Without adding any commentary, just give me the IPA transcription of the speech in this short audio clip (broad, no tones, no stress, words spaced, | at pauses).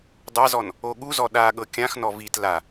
dˤazɔn | oɠuzɔ ɗa ɠɤkʲãxnɔ vit la